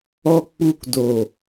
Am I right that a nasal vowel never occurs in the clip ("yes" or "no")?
yes